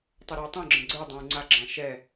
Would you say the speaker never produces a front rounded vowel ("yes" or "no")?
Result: yes